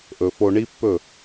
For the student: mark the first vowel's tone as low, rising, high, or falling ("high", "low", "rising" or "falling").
low